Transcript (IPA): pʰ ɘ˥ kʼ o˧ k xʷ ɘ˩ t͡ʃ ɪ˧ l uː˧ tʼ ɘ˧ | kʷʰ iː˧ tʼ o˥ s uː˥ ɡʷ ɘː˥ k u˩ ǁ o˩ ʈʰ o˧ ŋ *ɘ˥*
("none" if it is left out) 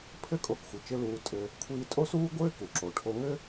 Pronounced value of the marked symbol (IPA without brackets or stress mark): ɘ˥